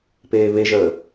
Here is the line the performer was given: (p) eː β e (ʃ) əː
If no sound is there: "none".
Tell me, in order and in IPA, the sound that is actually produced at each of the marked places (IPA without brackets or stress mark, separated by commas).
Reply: p, ʒ